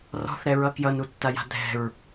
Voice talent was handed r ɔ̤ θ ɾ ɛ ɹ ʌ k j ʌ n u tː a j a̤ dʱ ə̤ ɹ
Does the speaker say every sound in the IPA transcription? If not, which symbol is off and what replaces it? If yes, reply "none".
ə̤ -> ɛ̤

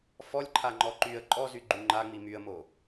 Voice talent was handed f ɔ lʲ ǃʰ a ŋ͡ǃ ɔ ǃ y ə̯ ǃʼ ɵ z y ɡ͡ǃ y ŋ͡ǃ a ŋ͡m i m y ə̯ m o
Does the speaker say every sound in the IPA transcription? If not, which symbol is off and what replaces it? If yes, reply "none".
ɵ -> ɔ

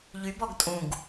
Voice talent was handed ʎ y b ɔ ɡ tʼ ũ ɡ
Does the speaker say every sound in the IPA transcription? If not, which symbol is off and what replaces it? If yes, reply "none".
none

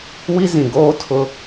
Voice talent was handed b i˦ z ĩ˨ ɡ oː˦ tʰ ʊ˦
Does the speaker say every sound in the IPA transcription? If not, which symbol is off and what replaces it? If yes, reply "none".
b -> w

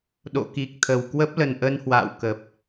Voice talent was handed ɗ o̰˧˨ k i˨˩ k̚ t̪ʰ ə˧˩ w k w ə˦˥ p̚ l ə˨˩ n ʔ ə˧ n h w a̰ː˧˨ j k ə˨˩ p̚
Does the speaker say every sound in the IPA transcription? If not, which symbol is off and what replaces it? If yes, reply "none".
j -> w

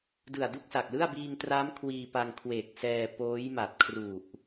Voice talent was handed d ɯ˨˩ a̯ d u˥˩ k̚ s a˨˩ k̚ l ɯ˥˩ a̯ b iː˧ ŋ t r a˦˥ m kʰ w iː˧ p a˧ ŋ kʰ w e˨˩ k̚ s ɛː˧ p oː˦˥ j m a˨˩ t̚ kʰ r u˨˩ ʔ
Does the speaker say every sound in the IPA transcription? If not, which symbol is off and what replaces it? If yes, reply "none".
none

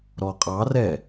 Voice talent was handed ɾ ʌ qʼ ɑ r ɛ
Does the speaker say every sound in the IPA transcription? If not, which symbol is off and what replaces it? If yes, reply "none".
ʌ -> ɔ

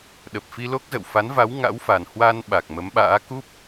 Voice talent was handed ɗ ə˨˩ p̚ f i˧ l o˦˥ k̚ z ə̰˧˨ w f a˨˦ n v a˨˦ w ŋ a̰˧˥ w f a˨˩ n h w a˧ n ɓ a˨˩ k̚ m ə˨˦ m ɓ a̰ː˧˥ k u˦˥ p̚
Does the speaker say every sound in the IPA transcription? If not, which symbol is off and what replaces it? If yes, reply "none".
none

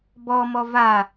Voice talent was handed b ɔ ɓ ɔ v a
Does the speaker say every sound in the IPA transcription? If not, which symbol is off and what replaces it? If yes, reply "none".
ɓ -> m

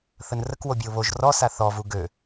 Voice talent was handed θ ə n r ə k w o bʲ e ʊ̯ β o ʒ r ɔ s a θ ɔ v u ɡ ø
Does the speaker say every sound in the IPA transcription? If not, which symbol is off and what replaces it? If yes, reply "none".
none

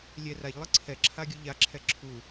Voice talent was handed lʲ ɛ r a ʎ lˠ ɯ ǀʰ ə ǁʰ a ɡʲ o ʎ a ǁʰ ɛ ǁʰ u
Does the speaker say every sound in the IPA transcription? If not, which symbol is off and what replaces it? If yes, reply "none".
ə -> ɛ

